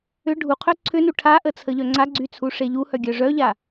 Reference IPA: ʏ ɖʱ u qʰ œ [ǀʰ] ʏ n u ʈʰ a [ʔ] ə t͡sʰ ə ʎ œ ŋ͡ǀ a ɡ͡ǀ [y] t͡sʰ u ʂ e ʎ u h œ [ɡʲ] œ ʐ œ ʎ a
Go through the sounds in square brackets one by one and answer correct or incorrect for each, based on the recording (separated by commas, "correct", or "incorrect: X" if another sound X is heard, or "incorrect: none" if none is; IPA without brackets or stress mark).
correct, correct, correct, correct